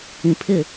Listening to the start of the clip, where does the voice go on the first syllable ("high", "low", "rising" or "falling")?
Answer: low